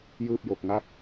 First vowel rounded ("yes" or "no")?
no